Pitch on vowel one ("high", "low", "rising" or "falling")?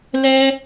high